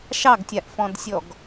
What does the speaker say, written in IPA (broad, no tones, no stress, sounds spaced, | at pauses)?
ʃ ɑ ɡ tʲ a ʔ f ɔ̃ d sʲ ɔ ɡ